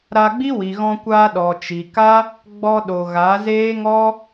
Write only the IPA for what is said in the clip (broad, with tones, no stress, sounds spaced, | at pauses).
ɾ a˧ ɡ͡b i˦ w i˨ ɣ ɔ̃˧ kʷ aː˧ ɗ ɔ˨ t͡ʃ i˨ k a˦ | ɡ͡b ɔ˧ ɗ o˨ ɣ a˨˦ z eː˦ ŋ ɔ˦